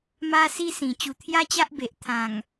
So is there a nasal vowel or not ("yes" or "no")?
yes